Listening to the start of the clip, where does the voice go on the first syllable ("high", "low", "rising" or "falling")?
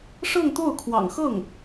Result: falling